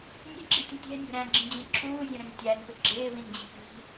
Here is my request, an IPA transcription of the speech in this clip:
nʲ ɛ̤ ɡ͡ǁ i tʲ ə̃ tʲ ɛ̤ nʲ ə̤ ɾ æ̃ ɡ͡ǁ ĩ d͡ʑ ĩ ǁʰ uː zʲ ə̃ ɾ ə̃ n tʲ æ n p ɪ ɡ͡ǁ ɪː v ĩ n d͡ʑ i̤ p i̤

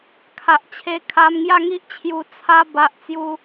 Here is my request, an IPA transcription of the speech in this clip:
kʰ a˨ ʔ t͡ɕʰ e˧ kʰ a˧ m ŋ j a˦ ŋ i˦ ʔ t͡ɕʰ j u˧ t͡sʰ a˧ b a˦ ʔ t͡s j u˦

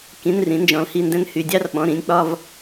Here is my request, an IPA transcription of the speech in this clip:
k ĩ˩˧˩ n r ĩ˩˧ n d͡ʒ ɔ̃˩˧ l h i˩˧˩ n d ɛ̃˧ n h y˩˧˩ dʲ ɑ˥˧ r ɓ ɔ̃˩˧˩ ɾ ĩ˩˧˩ nʲ k͡p ɒ˥˧ v

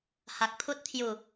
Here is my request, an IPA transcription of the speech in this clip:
h a˨ k̚ pʰ u˦ t̚ t̪ʰ j u˨˩

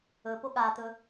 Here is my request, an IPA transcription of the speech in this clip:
ɵ p o ɠ a t̪ ɵ

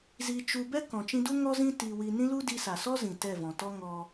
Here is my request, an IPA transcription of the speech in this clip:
z i˧ t͡ʃ u˧ b ɛ˦ k ɔ̃˨ t͡ʃ ĩ˧ d u˦ ŋ ɔ˦ z ĩ˦ t i˧ w i˧ n ĩ˦ l u˦ d i˧ s a˨ s ɔ˦ z ĩ˨ t ɛ˦˨ v ɔ̃˨ t ɔ˦ ŋ ɔ˧

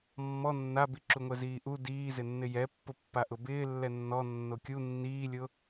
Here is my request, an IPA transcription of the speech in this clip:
mː ɔ nː a b i ǁ u ŋʷ ɛ z iː ʔ u d iː z ɪ nː ɪ j ɛ pː ʊ pː a ʔ ʊ b ɪː lː ɛ nː ɔ nː o kʲ u nː iː lʲ ʊ

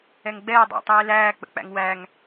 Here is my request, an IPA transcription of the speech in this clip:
ɛ ŋ ɡ͡b ɛː dˤ æ̰ tˤ iː l æː k͡p ə̰ k͡p æ̰ ŋ w æ ŋ

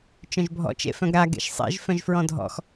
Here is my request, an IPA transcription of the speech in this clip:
t͡ʃ œ̃ ʒ bʱ ɔ̰ t͡ʃ ḛ f œ̃ ɡ ɾ a ɡ ḛ ʃ sˤ ḛ ʒ f œ̃ ʒ f ɹ ɔ̃ dʱ ɔ̰ x

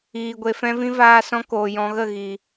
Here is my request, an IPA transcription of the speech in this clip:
iː˨ ɡʷ e˨ f ɛ̃˧ v ĩ˧ v aː˧ s ɔ̃˧ k oː˨ j ɔ̃˨ ɣ ə˦˨ ɣ i˨

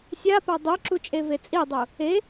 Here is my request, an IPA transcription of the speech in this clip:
sʲ a p a dˤ u ǁ u t͡ʃʼ e v e t͡sʼ i dˤ u | e

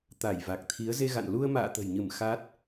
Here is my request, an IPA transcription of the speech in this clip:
t̪ a˧˩ j v a˨˩ k̚ t̪ʰ i˨˦ ə̯ z e˧ ɣ a̰˧˨ n l u˧ ə̯ m a̰ː˧˨ t̪ ə̤˨˩ j ɲ ɨ˧˩ m x a˦˥ t̚

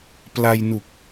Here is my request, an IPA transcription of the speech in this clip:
p l a˧ j n u˨˩ k̚

